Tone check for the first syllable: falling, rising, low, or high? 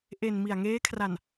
low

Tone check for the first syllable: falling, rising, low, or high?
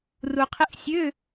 low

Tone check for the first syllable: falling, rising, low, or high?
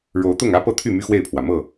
rising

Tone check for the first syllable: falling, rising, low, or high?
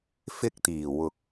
high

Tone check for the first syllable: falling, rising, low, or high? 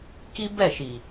high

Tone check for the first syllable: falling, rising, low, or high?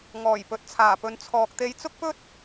low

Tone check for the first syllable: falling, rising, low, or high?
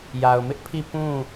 low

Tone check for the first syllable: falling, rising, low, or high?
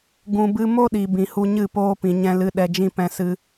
low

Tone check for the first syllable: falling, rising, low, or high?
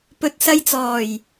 low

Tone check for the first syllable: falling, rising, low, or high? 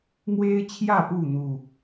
high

